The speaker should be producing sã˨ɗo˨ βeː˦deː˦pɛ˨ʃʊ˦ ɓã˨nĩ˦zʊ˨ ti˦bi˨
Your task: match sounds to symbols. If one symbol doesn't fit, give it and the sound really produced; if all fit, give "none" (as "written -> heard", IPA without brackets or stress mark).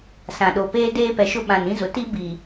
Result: β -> p